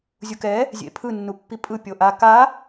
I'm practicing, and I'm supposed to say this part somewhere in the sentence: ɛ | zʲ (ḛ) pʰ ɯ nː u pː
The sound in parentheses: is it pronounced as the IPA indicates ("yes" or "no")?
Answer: yes